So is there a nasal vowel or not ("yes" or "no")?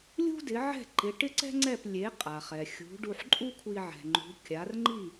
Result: no